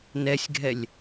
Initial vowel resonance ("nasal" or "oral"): oral